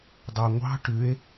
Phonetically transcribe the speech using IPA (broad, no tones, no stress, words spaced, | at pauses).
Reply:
dˤɑŋʷɑ̤ ʈʉe̯